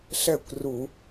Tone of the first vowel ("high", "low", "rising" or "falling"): falling